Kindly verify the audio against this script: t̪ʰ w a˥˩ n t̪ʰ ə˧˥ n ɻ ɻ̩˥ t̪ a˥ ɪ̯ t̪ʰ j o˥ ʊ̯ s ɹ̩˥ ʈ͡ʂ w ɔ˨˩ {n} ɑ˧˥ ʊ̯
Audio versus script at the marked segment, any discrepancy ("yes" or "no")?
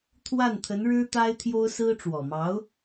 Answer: yes